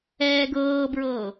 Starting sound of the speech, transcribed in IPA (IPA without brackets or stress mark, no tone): ɛː